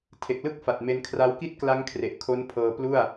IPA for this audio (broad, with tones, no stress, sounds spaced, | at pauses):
tʰ e˨˩ k̚ l ɯ˥˩ k̚ f a˨˩ t̚ m e˧ n kʰ r a˦˥ w k i˥˩ t̚ k l a˦˥ ŋ kʰ r e˨˩ ʔ kʰ o˦˥ n pʰ ɤː˧ p l u˥˩ a̯